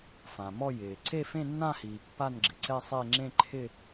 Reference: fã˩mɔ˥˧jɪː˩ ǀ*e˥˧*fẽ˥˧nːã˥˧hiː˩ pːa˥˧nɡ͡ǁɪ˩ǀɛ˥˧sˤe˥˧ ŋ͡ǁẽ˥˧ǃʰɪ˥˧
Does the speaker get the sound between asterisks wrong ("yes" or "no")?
no